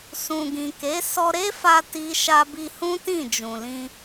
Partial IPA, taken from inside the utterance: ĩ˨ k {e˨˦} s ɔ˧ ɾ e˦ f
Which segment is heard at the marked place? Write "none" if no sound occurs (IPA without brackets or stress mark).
e˨˦